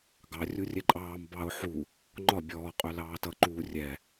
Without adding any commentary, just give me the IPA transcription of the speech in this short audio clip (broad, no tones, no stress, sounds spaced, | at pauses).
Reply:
ɡ ɑ rʲ u rʲ ɛ ǃʼ ɑː m b ɑ ʊ̯ ħ u | ŋ͡ǃ ɒ bʲ ɔː qʼ œ l ɑː t ʌ ǃ uː rʲ ɛ